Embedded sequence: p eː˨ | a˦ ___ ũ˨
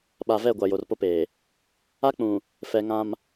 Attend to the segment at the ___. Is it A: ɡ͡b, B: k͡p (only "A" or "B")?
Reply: B